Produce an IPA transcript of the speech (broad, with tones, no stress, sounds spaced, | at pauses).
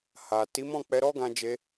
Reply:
h a˨ t i˨˦ m ɔ̃˦˨ k͡p ɛ˧ ɾ ɔ˦ ɡ ã˧ d͡ʒ e˧